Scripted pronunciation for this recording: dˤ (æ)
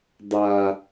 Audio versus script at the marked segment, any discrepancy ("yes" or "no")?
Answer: yes